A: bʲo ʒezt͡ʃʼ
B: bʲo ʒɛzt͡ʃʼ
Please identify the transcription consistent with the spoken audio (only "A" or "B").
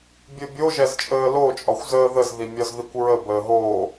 B